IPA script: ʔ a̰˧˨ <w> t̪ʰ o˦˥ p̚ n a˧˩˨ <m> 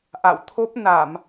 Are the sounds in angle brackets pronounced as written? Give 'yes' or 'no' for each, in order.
yes, yes

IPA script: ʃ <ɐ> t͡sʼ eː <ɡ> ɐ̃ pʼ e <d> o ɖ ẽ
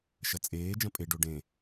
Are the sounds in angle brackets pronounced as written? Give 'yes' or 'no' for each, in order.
yes, no, no

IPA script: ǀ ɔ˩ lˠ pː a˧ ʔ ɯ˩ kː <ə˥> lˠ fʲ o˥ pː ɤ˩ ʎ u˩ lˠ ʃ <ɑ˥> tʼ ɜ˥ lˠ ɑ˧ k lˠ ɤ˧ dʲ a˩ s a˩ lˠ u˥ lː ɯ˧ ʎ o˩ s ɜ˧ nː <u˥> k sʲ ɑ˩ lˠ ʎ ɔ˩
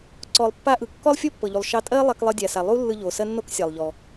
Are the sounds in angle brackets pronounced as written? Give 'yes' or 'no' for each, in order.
no, no, no

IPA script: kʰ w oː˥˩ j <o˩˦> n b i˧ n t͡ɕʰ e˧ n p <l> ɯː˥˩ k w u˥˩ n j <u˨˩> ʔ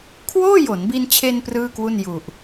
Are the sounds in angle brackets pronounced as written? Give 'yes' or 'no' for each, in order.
yes, no, yes

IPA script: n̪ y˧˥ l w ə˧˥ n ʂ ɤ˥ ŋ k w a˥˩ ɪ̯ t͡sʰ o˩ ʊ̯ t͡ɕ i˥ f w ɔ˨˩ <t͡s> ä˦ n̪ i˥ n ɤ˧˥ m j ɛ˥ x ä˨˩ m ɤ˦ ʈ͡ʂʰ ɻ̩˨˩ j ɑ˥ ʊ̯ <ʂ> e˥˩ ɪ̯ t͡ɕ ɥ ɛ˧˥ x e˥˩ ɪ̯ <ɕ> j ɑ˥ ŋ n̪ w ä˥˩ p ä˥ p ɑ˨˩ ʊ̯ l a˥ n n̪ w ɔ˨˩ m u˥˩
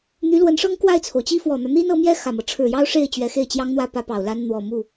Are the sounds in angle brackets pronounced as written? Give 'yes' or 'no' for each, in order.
no, yes, no

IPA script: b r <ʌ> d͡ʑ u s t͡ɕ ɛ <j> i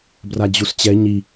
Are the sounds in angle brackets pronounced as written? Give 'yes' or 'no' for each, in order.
no, no

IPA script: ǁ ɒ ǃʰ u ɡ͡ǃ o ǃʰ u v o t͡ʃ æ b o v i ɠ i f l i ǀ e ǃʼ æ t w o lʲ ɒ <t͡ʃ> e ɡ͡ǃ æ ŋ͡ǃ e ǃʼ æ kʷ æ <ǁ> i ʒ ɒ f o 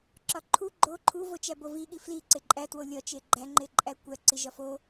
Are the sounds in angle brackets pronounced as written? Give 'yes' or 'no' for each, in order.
yes, no

